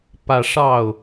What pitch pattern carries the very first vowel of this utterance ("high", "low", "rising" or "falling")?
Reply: falling